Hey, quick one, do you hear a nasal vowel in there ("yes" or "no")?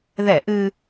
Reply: no